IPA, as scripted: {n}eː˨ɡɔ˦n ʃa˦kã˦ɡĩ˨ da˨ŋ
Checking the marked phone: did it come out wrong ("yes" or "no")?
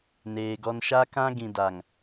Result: no